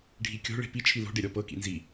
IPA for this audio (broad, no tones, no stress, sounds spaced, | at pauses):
ɖʱ i kʲ o̤ ɭ e̤ p i t͡ʃʰ i l o̤ ɖ e ɾʲ ɔ p ɤ k ḭ n z i